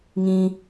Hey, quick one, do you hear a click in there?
no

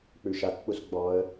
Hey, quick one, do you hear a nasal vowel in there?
no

